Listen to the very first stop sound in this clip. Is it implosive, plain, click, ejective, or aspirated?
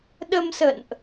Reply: implosive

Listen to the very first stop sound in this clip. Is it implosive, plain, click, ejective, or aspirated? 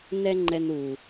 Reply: click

